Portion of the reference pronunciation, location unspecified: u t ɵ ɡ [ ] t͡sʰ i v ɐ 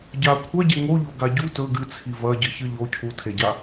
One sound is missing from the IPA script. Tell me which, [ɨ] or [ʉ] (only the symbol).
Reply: ɨ